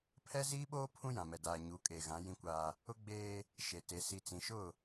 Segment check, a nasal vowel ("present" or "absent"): present